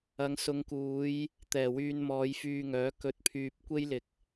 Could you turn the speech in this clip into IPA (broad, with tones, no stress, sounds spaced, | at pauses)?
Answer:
ɐ˨˧ ŋ s ʊ˨˧ ŋ k uː˨˧ j | t̪ ɛː˨˩ w yː˧ n m ɔː˨˧ j f yː˧ ŋ œː˨˥ k ɵ˧ t̚ pʰ yː˧ p̚ kʷ e˥ j l ɪ˨ k̚